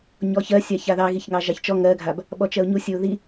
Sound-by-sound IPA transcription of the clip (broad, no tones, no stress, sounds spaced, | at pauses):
ɲ ɔ ç ɜ sʲ a ç a ð ɑ ɣ i ç ŋ ɑ ʒ ɑ ç t͡ʃ ɔ ŋ ɜ ɡʱ a b | ɓ ɔ t͡ʃ ɜ ʊ̯ ɲ u sʲ ə ʊ̯ ð i